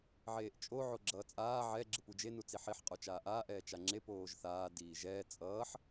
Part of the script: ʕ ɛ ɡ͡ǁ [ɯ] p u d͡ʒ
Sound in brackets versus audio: correct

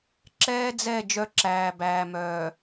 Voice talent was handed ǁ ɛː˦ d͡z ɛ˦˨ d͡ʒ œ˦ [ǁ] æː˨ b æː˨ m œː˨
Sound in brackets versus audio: correct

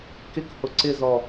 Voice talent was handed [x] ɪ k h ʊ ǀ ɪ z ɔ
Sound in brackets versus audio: incorrect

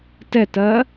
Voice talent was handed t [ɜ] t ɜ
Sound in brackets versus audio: incorrect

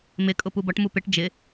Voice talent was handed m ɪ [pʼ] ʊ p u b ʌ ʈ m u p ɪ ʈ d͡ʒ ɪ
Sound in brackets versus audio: incorrect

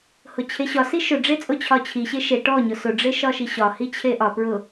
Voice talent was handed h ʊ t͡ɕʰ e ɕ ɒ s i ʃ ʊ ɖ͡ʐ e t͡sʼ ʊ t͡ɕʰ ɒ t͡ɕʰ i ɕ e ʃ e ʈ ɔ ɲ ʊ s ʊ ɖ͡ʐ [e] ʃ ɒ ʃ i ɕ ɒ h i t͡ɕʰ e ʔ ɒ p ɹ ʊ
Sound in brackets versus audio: correct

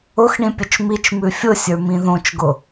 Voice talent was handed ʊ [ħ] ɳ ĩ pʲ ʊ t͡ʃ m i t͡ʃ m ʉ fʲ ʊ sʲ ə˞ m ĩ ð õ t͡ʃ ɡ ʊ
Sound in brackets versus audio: incorrect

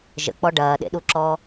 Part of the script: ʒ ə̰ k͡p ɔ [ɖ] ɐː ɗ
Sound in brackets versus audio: correct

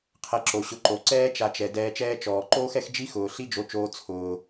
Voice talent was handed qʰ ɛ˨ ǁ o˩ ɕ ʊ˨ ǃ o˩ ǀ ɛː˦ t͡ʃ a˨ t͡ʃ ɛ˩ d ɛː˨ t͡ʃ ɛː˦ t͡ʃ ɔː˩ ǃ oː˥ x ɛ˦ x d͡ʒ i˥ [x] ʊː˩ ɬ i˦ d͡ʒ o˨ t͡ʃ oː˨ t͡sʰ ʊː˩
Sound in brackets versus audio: correct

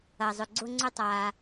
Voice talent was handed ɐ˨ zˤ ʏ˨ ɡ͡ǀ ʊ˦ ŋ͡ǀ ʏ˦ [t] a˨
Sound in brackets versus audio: incorrect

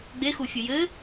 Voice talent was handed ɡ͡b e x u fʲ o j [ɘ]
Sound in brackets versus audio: correct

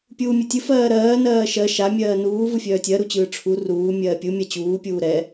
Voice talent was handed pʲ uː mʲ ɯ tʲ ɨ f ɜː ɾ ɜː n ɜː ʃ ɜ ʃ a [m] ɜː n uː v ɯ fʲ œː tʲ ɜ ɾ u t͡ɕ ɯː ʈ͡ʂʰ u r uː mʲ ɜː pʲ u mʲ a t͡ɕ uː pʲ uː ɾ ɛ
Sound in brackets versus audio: incorrect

